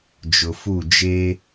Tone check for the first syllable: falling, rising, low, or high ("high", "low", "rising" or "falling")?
low